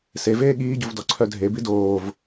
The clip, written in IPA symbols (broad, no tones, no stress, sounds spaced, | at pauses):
s e v eː ɠ iː ɟ u v d ɔ ǀʰ œ dʱ e b i d oː v